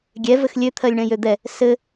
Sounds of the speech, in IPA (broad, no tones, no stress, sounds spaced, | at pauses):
ɡʲ ɛ v ɘ x lʲ ø t̪ʰ ɜ lʲ ɳ ɛ̃ j ø d̪ ɛ | s ɘ